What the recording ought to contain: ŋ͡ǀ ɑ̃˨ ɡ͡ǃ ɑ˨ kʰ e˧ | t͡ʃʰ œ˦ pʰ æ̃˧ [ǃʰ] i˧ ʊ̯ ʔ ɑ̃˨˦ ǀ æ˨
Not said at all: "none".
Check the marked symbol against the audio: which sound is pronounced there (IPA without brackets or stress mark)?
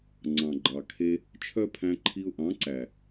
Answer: ǃʰ